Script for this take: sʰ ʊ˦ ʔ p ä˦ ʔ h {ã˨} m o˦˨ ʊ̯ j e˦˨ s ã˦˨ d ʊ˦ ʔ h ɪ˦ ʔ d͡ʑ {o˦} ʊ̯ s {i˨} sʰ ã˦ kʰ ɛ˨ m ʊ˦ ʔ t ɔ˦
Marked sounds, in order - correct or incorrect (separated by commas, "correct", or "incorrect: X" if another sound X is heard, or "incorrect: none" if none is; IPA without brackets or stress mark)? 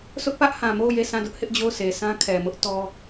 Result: correct, incorrect: o˦˨, incorrect: e˨